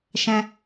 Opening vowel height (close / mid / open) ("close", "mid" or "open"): mid